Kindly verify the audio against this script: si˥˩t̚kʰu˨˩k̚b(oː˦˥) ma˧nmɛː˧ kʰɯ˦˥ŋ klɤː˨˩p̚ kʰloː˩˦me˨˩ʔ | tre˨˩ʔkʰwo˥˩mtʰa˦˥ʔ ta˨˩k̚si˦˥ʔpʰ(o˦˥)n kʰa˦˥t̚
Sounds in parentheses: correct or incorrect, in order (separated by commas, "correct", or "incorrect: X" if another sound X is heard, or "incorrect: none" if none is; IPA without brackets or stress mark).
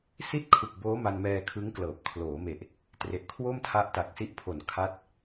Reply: correct, incorrect: o˨˩